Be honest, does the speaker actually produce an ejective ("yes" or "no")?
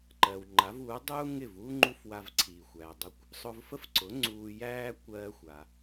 no